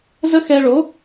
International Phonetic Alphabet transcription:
zə˦xɛ˧ ɭo˨˦

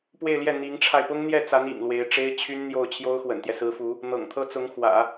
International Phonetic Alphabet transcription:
pwe˥˧ɪ̯ljɛ˥˩ n̪i˧˥ŋʈ͡ʂʰa˧ɪ̯ pʊ˥ŋn̪jɛ˥˩t͡sa˧˥n ḭ˨˩ŋlwe˧˥ɪ̯ʈ͡ʂe˥ɪ̯t͡ɕʰy˥n n̪jo˥˩ʊ̯ t͡ɕʰjo˥ʊ̯xwə̰˨˩nt̪jɛ˦ sɹ̩˧˥fu˧˥ | n̪ɤ̰˨˩ŋt̪ʰɤ˥ t͡sʊ˧˥ŋ xwä̰˨˩˦

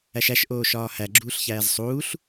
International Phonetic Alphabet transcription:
æʃæʃ ʔoːʃɒːhæ ɡ͡ǁuːɬçæːzsˤuːɬ

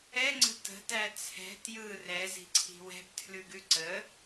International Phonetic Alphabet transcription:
ɛŋ͡ǀə̤ tə̤tæ t͡sʰɛ̤ tjɯ rɛzi̤ǀʰi̤ wɛ̤btʰlʉɡʉ ǀə

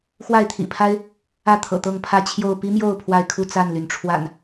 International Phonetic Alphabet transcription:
xwa˥˨ɪ̯t̪ʰḭ˨˩pʰa˦ɪ̯ | ä˥˨t̪ʰɤ̰˨˩t̪ɤ˥˨ŋpʰä˥˨ t͡ɕʰjo˥˨ʊ̯ pi˦mjo˥˨ʊ̯ pʰwa˥˨ɪ̯kʰu˥˨ t͡sa˥˨nly˩n ʈ͡ʂʰwa̰˨˩n

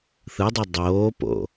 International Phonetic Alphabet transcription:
θɯdˤi dˤoːpo̰

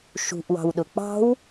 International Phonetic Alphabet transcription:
ʃṳʔwɑ̤wɗʊ k͡pɑ̤w

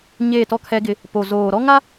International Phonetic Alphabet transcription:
ɲeː˦˨tɔ˦kʰɛ˦ɡɪ˦ | po˨ zoː˨ ɾɔ˦ŋa˦

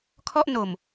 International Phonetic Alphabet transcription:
kʰɔ˥˩ʔ no˨˩m

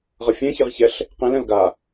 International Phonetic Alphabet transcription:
ʁʌfʲẽ çeʁçɛɬ | qẽlɛ̃l ɡa

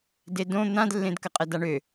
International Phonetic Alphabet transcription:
dedõ n̪ãdlːẽdkə qʼɛdaɳø

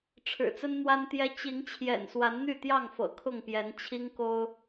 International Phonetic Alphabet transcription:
ʈ͡ʂʰɻ̩˨˩t͡sə˦nn̪wa˦nt̪jɛ˦ t͡ɕi˨˦ŋ t͡ɕʰjɛ̰˨˩nswa˨˦nn̪y˥˨t̪jɑ˥˨ŋ fɤ̰˨˩kʰʊ˥˨ŋpjɛ˨˦n t͡ɕʰi˦ŋko˦ʊ̯

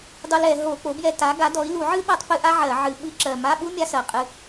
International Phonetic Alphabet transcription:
dˤu˧lɛ˧˩˧ ɦo˧˩˧k͡po˩˥bjɛ˧ta˩˥ ɡa˩˥dɔ˩˥i̯ lu˧˩˧ʕɨ˥ɓɜ˧tˤpɨ˧ ʔa˥ʕɜ˧˩˧ʕɨ˧˩˧ ɓɨ˧˥˧ǁɜ˨˩ ma˧˥˧ɓu˥ mʲa˥sɜ˨˩qʼɨ˧

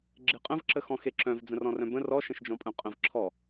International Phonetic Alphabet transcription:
ɡ͡ǁeqʼə̃vǁəxɔ̃ xeǁœ̃v d͡zə̃rɔ̃rœ̃bə̃ rɔʃə̃ʃd͡ʒɔ̃pʼœ̃ qʼə̃v ǁʰɔ

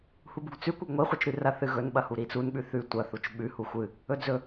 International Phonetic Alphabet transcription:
hubuɡt͡sʉ kʷɐɡŋʷi χʷɨt͡ʃɾʉrɐ θɨɣɵn ɓɐhuɾit͡sun ɓʉθʉ tʷɐ θut͡ʃɓʉ huxʷɨ | ɵd͡zɵ

